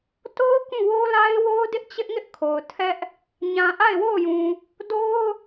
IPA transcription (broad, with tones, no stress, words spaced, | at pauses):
to˦ʊ̯ kũ˦˨wo˦ la˦ɪ̯wo˦ʊ̯ dɪ˦ʔt͡ɕɪ˦ʔŋɪ˦ʔ kʰo˨ʊ̯tʰɛ˦ʔ | ɲã˨ʔa˦˨ɪ̯wo˦˨ʊ̯jũ˨ | do˦ʊ̯